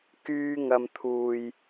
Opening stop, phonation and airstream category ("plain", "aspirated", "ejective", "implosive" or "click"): plain